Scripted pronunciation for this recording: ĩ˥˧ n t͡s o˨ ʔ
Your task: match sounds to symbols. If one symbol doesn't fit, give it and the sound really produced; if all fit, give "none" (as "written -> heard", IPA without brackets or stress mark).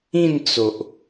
none